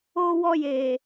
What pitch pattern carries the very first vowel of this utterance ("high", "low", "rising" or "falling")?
high